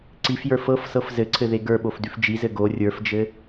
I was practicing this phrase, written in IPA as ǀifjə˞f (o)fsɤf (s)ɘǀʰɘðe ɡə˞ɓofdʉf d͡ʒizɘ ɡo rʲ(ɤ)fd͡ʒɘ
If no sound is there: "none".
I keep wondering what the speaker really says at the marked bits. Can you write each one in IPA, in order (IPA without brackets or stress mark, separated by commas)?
ɤ, z, ə˞